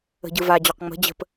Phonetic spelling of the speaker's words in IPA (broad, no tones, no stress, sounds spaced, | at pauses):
ə̤ ɟ ɯ v a d͡ʑ ɔ q ŋ͡m ə̤ d͡ʑ ə̤ p